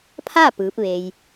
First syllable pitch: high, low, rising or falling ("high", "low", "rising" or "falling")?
falling